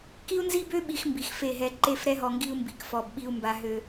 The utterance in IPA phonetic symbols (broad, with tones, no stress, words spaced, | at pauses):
ki˦u̯nzi˦bø˦ ɓi˦x mbi˨xfe˦˨ ɦɛ˦ ǃe˦˨fɾɛ˦ɦɔ˨ŋɡi˦u̯ mbi˨kfɔ˨bɓi˦u̯ mba˦ɦø˦